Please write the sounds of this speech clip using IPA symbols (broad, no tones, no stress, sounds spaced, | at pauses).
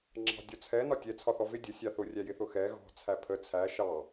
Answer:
ŋ͡ǁ ɑ̤ dʲ ɔ t͡sʰ ɛ n ɒ tʲ ɛ t͡sʰ ɒ θ ɔ v ɪ dʲ ə sʲ ɑ θ ʊ rʲ æ j ɪ θ ʊ x ɛ ɣ ɔ̤ t͡sʰ æ pʰ ə t͡sʰ æ ʃ ɑ